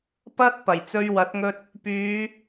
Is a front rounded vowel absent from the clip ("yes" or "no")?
no